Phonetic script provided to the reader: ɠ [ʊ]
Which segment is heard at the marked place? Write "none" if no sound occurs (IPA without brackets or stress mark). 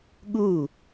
u